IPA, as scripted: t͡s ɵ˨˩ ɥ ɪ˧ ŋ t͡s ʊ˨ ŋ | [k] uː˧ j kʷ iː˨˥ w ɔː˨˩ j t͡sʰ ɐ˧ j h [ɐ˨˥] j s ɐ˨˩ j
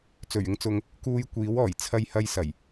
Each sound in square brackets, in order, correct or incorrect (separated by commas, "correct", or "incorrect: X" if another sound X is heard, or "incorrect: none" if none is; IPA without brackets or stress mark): correct, incorrect: ɐ˧